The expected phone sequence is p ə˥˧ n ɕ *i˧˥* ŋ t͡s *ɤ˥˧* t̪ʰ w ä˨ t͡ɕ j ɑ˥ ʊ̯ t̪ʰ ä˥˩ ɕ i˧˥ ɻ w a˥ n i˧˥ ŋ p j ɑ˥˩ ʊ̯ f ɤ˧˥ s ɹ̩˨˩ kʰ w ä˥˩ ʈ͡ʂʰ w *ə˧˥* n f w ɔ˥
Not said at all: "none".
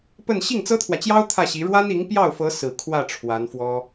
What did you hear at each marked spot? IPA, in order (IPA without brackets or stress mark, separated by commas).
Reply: i˥˩, ɤ˥, a˧˥